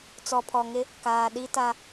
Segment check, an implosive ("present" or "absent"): present